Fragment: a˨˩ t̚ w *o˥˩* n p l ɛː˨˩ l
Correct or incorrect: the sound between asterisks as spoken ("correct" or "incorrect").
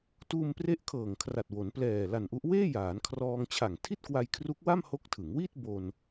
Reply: incorrect